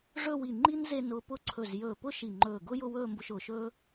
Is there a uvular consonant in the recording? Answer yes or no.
no